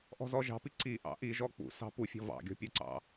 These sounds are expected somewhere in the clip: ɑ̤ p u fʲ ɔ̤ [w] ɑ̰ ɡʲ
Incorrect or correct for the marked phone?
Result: incorrect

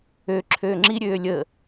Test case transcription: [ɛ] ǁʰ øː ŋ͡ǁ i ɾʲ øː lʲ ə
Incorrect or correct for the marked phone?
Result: incorrect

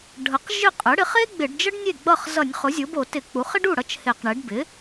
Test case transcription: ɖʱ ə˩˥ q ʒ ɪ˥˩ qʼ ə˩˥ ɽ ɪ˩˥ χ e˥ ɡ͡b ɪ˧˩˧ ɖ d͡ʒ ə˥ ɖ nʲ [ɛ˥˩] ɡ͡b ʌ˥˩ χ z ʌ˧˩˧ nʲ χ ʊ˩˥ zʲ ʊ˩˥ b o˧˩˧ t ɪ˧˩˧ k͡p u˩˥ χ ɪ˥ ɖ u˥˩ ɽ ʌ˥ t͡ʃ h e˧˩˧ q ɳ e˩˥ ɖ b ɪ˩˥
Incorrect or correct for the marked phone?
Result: incorrect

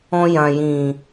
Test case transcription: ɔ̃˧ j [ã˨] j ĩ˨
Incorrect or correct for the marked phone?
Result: correct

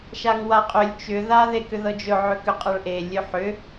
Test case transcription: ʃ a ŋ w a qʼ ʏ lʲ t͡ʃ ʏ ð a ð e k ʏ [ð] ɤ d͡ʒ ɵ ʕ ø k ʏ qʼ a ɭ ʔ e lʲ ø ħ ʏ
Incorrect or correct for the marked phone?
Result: correct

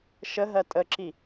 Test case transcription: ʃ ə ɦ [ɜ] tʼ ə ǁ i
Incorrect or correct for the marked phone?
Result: correct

